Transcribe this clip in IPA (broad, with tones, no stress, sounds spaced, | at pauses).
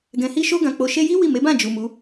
ɡ ɛ̃˨ h i˧ ʃ o˧ ɡ ã˨ k͡p o˨ ʃ e˧ j i˦ w i˦˨ m e˨˦ b ã˦˨ d͡ʒ u˨ m u˨˦